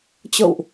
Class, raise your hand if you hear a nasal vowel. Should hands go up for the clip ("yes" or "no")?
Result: no